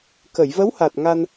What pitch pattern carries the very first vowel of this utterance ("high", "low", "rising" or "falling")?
low